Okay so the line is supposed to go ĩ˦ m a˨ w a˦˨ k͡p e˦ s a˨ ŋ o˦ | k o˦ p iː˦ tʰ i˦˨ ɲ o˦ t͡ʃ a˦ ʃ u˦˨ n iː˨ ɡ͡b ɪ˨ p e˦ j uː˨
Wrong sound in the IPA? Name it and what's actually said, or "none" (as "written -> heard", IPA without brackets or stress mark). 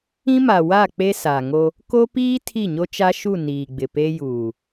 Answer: none